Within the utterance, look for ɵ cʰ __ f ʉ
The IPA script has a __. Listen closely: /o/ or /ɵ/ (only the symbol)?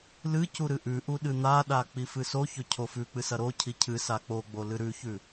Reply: o